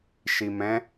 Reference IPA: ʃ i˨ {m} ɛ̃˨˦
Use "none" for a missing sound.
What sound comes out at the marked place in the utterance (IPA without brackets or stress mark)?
m